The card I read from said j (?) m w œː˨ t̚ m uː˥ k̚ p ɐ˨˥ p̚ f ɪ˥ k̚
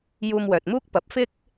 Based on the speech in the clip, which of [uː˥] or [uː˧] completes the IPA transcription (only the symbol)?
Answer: uː˧